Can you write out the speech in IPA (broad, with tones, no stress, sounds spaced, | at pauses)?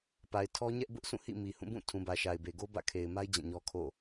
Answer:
p a˨ ɪ̯ tʰ ɔ˦ ɲ ɛ˦ ʔ b ʊ˦ ʔ s ũ˦˨ h ḭ˦˨ m i˨ h ũ˦˨ b ũ˦˨ tʰ ũ˨ b ä˨ ʃ a˨ ɪ̯ b e˨ ɡ o˦ b ä̰˦˨ kʰ e˨ ɪ̯ m a˦ ɪ̯ d͡ʑ ã˦˨ ɲ ɔ˦ kʰ o̰˦˨